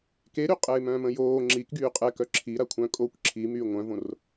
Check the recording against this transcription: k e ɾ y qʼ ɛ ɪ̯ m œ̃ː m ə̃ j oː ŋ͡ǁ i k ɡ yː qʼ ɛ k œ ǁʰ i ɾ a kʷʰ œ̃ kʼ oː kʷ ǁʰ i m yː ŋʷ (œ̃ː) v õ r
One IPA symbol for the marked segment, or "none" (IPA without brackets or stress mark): œ̃